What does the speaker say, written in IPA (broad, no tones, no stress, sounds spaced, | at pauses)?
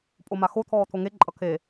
pʼ o m a x o t̪ʰ ɔː t̪ʰ o ŋ e ǃʼ ʌ kʰ e